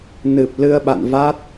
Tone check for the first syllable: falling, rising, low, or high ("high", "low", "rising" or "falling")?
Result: low